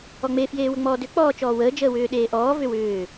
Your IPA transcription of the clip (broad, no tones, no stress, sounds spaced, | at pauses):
ɔ ŋ͡m e f j eː w ə ŋ͡m ɔː d ʏ k͡p ɔː t͡ʃ ɔː w əː d͡ʒ əː w ʏː ɗ eː ʔ ɔː v ʏ w ʏː